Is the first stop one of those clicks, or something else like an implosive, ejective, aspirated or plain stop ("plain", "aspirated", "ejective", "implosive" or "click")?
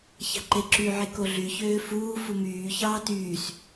click